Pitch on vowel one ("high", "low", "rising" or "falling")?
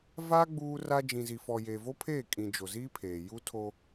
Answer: high